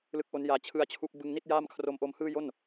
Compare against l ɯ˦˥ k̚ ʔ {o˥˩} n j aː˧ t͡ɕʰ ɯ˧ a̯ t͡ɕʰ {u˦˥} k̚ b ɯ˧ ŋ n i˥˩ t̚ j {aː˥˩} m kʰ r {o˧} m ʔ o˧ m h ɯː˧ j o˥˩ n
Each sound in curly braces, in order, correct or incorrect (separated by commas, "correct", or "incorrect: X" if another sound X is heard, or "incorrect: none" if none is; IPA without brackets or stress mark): incorrect: o˦˥, correct, correct, correct